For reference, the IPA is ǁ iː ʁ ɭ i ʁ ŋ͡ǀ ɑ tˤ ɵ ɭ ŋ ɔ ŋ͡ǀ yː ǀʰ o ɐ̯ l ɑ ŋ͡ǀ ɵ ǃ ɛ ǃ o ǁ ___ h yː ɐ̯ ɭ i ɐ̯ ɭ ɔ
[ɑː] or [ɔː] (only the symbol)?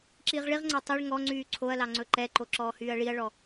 ɔː